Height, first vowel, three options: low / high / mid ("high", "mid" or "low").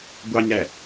low